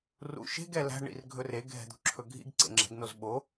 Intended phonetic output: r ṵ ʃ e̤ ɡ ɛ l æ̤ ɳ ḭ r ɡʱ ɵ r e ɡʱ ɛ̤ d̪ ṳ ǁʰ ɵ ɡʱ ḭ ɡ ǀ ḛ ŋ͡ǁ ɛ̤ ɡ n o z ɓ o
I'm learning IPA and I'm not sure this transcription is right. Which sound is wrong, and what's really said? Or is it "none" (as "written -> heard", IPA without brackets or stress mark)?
none